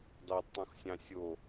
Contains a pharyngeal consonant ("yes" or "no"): no